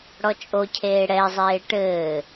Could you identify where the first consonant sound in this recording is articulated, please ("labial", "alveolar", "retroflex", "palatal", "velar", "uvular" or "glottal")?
retroflex